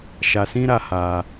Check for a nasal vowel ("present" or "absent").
present